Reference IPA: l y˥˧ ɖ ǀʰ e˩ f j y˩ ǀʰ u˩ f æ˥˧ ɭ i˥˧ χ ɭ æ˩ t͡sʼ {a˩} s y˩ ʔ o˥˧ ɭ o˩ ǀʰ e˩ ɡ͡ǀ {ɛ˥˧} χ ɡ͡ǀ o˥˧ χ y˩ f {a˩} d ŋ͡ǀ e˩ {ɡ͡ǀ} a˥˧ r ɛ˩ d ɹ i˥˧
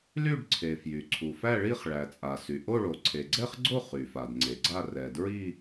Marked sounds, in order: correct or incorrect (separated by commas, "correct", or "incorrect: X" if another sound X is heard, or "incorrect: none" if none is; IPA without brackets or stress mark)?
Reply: correct, correct, correct, correct